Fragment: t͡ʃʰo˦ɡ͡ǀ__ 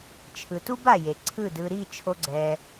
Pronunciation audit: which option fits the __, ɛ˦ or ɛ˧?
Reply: ɛ˧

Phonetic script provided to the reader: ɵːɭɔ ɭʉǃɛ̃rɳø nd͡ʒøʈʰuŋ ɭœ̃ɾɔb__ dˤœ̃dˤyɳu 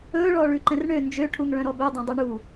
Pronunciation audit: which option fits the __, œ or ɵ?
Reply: ɵ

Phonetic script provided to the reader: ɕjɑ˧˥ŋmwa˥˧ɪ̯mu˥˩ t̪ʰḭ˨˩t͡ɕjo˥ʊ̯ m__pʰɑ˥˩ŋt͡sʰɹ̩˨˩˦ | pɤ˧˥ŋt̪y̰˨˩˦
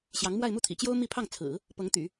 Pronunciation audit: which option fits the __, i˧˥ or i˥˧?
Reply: i˥˧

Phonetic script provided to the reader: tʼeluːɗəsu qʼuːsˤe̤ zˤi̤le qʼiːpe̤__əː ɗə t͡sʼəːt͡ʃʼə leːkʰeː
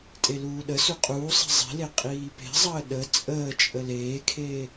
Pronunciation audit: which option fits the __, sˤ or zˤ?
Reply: zˤ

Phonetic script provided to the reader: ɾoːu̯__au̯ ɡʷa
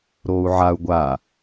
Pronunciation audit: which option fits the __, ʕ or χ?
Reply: ʕ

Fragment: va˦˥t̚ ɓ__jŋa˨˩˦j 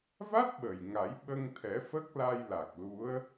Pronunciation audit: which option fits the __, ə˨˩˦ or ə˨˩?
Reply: ə˨˩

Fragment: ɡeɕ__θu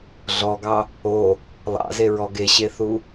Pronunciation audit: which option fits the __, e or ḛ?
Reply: e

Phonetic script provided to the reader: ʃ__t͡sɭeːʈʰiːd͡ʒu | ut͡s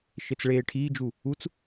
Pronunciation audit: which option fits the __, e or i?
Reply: e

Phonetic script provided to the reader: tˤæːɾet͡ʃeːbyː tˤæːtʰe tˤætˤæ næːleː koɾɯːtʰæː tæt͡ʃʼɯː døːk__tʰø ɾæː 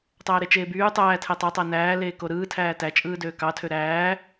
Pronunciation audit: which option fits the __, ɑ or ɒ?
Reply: ɑ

